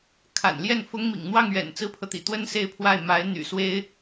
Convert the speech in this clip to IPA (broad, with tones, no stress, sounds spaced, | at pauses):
kʰ a̰˨˩ n l j ɛ˥˩ n f ʊ˥ ŋ m ḭ˨˩ ŋ n̪ w ɑ˥˩ ŋ ɥ ɛ̰˨˩ n t͡s ɹ̩˥ pʰ ɤ˨ t̪ ḭ˨˩ t̪ w ə˥ n s e˥˧ ɪ̯ pʰ w a˥˩ ɪ̯ m a˧˥ ɪ̯ n̪ y̰˨˩ s w e˥ ɪ̯